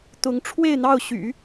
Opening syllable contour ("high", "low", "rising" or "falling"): rising